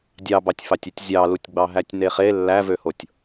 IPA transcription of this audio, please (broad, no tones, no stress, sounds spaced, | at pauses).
dʲ ɑ b ɑ tʲ f ɑ tʲ y tʲ zʲ ɑ l u tʲ ɡ͡b ɑ ɦ æ tʲ n e χ e lː æ v ø h o tʲ